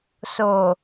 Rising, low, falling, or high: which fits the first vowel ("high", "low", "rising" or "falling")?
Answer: low